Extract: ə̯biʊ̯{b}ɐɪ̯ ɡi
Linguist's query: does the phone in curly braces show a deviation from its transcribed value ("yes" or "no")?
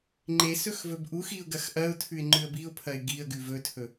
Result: yes